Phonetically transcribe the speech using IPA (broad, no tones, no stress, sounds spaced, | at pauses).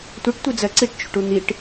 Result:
tʷ e ʈ tʷ i d͡z ɜ ǀ i ʈ t͡ʃ ṳ ʈ u n̪ i ʈ